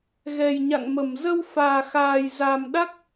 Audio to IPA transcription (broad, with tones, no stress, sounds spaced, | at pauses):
ɣ ɛ˨˩ j ɲ a̰˧˨ ŋ m ə˧˩ m z ə˧ w f aː˨˩ x aː˨˩ j z a˨˩ m ɗ a˦˥ k̚